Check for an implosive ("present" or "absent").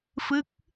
absent